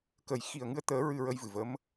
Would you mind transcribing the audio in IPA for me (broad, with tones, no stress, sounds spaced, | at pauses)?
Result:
k ə˨˩ j x i˨˩ ə̯ ŋ ɨ˧ ə̯ t̪ əː˨˩˦ ɹ ɨ˧ ɹ ə˧ j v ɨ˨˩ v ə˧˥ m